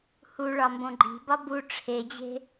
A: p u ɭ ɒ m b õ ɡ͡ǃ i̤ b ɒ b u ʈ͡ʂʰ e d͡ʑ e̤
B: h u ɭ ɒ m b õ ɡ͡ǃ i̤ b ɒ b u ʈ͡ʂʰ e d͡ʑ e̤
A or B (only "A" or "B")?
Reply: B